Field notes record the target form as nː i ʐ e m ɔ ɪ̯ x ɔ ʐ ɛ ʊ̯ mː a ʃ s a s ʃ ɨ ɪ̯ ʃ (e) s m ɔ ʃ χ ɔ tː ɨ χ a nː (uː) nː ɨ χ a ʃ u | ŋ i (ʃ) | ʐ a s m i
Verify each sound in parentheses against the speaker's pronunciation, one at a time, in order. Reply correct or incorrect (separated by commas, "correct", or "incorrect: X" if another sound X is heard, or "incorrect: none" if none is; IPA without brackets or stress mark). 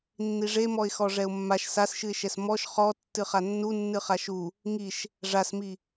incorrect: ɛ, incorrect: u, correct